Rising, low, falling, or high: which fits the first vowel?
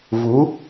rising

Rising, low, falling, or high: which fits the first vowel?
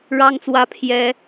high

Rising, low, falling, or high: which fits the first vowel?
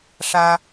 high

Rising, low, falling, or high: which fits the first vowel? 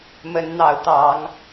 rising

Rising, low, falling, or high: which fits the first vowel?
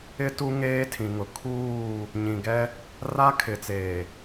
high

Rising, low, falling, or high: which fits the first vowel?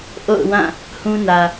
falling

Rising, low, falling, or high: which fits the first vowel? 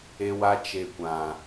high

